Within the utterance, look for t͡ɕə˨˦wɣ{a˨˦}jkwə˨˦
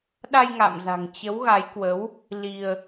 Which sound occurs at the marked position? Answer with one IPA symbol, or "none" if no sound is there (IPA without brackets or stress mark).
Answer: a˨˦